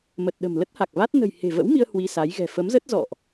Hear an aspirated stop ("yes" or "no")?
no